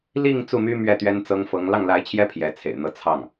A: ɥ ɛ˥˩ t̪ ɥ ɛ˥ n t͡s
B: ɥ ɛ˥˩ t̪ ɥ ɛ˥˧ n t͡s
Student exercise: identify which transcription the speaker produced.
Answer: A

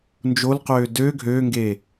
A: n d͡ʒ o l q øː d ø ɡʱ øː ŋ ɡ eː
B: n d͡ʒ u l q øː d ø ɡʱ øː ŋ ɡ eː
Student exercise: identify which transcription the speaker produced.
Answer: A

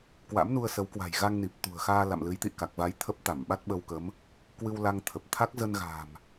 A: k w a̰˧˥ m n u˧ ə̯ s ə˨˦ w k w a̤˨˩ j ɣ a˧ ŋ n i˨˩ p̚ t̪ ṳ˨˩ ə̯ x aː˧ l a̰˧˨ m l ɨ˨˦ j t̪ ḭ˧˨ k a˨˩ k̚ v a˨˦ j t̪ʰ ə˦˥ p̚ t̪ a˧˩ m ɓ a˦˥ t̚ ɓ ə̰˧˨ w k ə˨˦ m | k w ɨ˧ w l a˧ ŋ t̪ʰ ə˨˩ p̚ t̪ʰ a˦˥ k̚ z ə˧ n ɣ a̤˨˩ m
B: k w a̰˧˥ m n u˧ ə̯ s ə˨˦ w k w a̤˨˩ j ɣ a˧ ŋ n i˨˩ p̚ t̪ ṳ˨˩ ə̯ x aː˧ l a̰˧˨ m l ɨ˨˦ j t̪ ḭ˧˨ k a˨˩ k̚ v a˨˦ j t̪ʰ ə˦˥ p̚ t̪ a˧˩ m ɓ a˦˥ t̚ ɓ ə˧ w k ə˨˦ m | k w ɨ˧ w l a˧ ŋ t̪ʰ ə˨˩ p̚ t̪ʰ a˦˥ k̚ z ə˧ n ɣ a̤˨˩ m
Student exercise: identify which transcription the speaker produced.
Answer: B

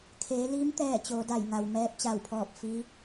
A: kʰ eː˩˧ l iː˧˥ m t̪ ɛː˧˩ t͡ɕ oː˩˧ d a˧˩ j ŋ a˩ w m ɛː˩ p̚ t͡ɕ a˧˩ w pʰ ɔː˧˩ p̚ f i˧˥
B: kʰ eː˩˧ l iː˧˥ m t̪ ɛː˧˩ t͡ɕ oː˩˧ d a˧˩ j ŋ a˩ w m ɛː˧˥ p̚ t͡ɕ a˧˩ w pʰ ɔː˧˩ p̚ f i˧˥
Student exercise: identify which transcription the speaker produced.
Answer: B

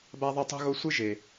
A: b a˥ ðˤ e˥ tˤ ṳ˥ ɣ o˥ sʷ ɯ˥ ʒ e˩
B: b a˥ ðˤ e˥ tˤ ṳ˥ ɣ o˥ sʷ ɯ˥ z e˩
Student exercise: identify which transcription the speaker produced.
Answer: A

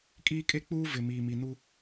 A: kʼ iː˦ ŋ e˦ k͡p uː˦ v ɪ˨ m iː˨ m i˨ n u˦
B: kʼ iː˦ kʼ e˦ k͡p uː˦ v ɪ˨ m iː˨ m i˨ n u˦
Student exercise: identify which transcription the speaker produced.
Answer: B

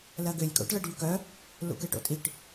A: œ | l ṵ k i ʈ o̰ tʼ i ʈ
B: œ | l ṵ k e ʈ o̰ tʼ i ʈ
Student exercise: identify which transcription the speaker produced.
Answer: B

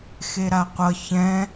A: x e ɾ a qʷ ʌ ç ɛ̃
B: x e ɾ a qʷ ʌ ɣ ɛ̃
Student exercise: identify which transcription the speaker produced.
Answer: A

